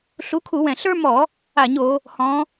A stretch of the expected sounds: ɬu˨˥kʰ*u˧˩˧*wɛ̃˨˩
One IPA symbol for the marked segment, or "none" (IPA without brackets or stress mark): u˧˩˧